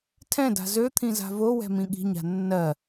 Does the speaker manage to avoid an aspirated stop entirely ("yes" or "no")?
no